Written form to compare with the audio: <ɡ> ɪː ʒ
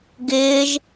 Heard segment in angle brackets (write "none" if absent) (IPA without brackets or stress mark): ɡ